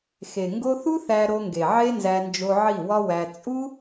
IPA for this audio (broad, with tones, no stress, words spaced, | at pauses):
xe˨ ŋɡo˧θu˦ θæ˧ɾo˧ŋɡe˨ ʕe˦nzæ˧ nd͡ʒo˧ʕi˦˨ wɒ˦wæ˧ t͡sʼu˦